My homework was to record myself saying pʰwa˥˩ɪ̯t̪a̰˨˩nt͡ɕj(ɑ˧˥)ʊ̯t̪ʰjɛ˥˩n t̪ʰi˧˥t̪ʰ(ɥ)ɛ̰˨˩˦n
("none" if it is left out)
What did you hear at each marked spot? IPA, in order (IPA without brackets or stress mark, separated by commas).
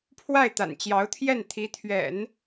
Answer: ɑ˧˥, ɥ